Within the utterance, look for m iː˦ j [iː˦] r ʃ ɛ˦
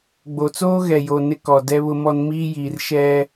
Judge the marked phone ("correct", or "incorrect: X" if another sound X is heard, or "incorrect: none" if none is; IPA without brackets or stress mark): incorrect: iː˨